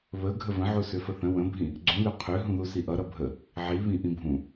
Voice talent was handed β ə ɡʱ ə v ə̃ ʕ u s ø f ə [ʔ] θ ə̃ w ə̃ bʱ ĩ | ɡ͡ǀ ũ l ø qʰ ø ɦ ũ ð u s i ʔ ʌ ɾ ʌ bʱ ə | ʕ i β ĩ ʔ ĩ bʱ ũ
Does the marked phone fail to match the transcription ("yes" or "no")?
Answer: yes